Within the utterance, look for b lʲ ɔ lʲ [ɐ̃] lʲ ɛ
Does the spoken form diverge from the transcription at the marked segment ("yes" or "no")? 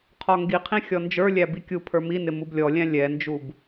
yes